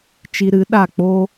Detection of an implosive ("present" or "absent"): present